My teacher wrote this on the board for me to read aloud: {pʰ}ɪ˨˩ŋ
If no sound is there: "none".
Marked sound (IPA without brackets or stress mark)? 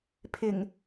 pʰ